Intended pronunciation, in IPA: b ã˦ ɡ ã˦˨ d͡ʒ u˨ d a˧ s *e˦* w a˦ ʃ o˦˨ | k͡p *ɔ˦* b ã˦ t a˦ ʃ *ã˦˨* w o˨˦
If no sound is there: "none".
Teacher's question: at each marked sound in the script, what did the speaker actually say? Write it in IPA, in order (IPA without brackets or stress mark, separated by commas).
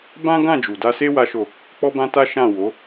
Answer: e˦, ɔ˦, ã˦˨